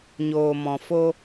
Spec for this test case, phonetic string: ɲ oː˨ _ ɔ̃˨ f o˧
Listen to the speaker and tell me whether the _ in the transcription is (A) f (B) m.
B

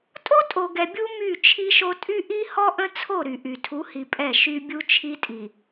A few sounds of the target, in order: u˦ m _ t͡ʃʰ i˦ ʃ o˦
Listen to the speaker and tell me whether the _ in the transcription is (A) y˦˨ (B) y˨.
A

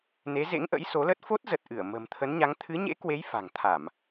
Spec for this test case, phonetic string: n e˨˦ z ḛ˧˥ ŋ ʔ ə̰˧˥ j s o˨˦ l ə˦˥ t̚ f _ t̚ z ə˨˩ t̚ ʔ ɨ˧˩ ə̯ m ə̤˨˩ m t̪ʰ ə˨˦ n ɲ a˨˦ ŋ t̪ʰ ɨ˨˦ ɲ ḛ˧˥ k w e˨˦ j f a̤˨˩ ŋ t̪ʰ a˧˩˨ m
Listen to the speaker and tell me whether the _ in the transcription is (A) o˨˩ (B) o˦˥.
B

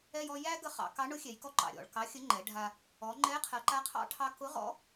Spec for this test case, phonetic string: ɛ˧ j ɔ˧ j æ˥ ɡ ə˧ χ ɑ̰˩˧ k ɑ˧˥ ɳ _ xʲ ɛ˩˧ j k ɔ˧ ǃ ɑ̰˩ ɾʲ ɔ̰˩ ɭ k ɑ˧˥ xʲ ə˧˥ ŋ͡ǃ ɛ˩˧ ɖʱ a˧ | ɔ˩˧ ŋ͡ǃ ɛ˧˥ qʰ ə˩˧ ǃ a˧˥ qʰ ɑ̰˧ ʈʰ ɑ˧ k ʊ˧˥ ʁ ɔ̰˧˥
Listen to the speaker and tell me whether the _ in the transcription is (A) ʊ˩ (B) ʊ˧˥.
B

